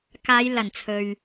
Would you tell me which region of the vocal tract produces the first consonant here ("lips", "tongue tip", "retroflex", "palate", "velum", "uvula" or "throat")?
velum